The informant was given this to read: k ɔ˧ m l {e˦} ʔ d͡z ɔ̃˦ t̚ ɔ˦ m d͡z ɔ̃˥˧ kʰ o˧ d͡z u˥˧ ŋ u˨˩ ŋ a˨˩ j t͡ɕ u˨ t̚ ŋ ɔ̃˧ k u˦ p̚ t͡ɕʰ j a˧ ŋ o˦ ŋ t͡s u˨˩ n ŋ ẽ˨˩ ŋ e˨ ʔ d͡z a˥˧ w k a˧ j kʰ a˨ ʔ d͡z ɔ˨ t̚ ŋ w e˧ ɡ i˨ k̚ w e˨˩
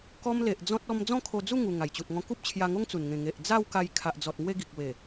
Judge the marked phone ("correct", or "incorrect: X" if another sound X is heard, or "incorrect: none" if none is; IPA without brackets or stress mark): incorrect: e˨